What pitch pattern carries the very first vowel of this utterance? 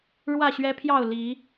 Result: falling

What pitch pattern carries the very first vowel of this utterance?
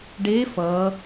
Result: rising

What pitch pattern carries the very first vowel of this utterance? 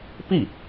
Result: falling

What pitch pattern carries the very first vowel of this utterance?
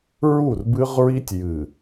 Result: falling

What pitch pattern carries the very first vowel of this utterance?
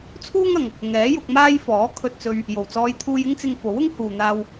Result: high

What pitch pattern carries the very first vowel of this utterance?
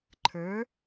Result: rising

